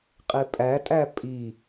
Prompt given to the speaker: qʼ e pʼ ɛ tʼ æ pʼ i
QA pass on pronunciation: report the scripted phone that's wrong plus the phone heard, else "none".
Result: ɛ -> æ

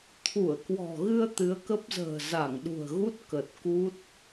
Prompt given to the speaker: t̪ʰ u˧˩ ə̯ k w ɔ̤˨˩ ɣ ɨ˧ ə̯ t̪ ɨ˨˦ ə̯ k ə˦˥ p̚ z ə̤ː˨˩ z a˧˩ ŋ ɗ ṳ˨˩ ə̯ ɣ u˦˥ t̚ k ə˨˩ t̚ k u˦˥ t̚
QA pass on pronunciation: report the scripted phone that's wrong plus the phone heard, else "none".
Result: none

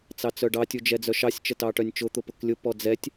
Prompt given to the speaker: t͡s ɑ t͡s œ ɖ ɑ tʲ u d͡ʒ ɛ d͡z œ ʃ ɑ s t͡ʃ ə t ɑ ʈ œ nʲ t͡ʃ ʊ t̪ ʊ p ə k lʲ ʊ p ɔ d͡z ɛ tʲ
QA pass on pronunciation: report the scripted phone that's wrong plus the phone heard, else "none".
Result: s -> sʲ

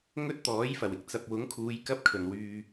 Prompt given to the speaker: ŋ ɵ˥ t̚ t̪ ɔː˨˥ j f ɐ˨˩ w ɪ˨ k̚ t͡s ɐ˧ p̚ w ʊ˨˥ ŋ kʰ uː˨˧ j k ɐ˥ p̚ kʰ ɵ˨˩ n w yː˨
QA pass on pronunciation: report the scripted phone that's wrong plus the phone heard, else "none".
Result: none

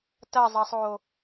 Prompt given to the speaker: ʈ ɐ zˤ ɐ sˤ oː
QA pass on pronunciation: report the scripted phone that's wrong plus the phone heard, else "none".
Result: ʈ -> t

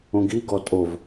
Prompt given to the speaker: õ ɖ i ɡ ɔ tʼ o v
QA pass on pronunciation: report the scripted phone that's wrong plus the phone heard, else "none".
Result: ɖ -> ɡ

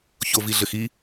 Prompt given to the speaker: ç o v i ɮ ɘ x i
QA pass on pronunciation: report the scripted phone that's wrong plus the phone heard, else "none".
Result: none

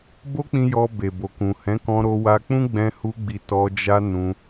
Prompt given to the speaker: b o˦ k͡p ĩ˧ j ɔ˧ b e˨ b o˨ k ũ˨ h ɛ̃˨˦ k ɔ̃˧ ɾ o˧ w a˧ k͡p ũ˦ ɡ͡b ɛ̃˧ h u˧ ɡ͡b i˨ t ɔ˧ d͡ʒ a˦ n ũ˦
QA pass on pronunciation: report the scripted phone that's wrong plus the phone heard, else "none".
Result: none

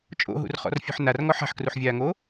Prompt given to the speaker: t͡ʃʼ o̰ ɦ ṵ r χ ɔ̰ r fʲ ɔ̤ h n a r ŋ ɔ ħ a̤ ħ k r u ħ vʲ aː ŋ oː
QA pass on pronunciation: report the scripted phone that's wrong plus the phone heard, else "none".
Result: h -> ħ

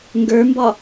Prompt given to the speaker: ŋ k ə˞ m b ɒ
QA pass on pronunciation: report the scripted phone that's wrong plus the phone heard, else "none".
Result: k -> ɡ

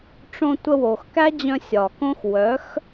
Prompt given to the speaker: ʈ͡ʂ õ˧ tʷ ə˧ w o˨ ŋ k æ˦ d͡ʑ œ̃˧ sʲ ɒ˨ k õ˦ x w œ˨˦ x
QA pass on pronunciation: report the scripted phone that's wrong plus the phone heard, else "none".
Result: ŋ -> x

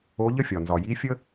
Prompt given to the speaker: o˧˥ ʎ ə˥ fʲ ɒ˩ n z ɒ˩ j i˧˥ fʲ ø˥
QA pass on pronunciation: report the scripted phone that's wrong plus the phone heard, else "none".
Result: ø˥ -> ə˥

